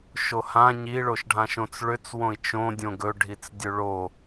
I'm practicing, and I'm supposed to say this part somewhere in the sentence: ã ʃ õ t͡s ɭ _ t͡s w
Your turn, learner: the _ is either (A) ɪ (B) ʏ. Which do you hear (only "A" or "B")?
B